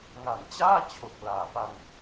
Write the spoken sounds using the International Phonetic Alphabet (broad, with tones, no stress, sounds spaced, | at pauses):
ŋ a˩˦ n t͡ɕ aː˥˩ t͡ɕʰ o˨˩ k̚ l aː˩˦ p a˧ ŋ